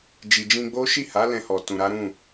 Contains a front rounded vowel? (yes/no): no